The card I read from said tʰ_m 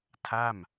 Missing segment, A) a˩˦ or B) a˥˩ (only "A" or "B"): B